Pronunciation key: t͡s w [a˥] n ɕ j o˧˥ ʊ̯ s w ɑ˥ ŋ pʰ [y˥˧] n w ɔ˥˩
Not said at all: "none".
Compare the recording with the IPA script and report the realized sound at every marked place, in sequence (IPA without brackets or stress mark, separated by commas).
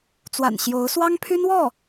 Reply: a̰˨˩, y˥